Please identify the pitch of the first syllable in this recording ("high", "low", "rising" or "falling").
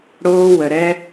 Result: high